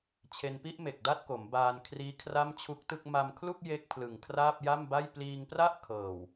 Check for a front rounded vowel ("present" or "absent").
absent